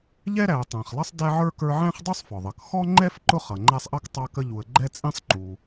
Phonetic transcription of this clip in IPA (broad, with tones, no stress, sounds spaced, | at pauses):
ʎ ɛ˥ ɾ æ˨ ə̯ tˤ æ̃˩ χ lˠ ʌ˥ sˤ d æ˥ ʕ ə˞˥ k ə˞˦ ʕ æ̃˥ χ dˤ u˥ sˤ f ɔ˩ ðˤ ʌ˩ k x ɔ˥ ŋ͡ǃ ɛ˥ f ǃ ʊ˥ χ ʌ˩ ŋ͡ǃ æ˦ sˤ ʔ ʌ˥ k tˤ ɑ˦ k ə˦ ʎ u˨ ə̯ ɡ͡ǃ ɛ˥ t͡sʼ ĩ˥ sˤ ǃ u˨